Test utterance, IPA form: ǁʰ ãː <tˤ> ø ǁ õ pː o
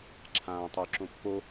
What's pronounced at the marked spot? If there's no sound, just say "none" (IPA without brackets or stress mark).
tˤ